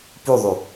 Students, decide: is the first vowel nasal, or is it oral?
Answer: oral